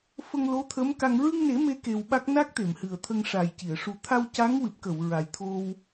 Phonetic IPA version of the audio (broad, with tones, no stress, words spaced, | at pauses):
fə˧ŋlo˧˥ t̪ʰə˧˥mka˧ŋ ɹɨ˧ŋne˨˩˦ me˧ ke˧wɓa˦˥k̚ na˦˥k̚t̪e˨˩˨mhɨ˨˩ə̯ t̪ʰə˧ŋʂa˨˩jci˨˩˨ə̯ ʂu˨˩t̪ʰa˧w ca˧˥ŋwɨ˨˩p̚kə˨˩˨w ɹa˨˩jt̪ʰo˧w